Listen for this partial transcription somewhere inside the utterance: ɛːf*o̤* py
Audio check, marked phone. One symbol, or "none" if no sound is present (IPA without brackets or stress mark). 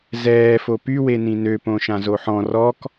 o